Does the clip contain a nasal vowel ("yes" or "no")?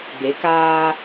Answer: no